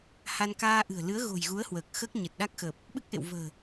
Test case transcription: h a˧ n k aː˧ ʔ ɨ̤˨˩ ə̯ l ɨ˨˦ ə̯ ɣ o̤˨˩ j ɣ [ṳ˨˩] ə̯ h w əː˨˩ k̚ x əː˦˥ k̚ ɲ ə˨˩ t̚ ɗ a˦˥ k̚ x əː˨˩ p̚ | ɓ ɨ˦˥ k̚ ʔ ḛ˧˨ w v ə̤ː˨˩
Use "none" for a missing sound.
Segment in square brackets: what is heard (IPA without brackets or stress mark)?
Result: u˨˦